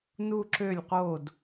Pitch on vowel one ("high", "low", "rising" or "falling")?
falling